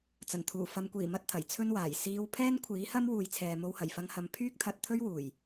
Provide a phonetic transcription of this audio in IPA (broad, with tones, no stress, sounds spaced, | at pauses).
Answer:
t͡s ɐ˨˩ n t̪ʰ uː˨˩ f ɐ˨˧ m kʷ iː˨˩ m ɐ˥ t̚ t̪ʰ ɐ˨˩ j t͡sʰ ɵ˥ n w aː˨˩ j s iː˧ w pʰ ɛː˥ n kʷʰ iː˨˥ h ɐ˥ m w uː˨ j t͡sʰ ɛː˨ m o˧ w h ɐ˨˩ j f ɐ˧ ŋ h ɐ˨˧ m pʰ yː˥ k̚ t̪ʰ ɐ˧ t̚ t̪ʰ ɵ˥ ɥ w uː˨˩ j